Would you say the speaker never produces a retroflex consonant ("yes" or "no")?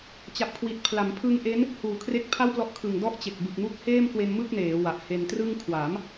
yes